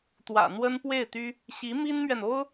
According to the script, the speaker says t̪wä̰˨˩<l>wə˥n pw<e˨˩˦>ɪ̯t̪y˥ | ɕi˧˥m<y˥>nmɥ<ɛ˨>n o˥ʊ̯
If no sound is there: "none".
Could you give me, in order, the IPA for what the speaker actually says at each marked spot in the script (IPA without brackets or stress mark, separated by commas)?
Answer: n̪, e˥˩, i˥, ɛ˨